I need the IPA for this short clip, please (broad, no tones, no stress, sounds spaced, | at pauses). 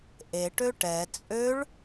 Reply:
ʔ e ʈ ø ʈ ɛ t͡sʼ ø ɭ